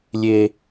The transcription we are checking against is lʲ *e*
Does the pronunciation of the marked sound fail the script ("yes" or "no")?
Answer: no